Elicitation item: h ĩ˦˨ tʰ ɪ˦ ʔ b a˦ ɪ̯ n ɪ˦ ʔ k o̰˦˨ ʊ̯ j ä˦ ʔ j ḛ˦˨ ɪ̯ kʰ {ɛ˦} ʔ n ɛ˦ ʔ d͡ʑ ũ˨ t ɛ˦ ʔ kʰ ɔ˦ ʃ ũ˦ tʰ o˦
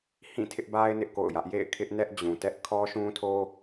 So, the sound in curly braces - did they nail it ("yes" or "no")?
no